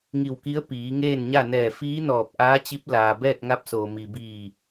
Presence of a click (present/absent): absent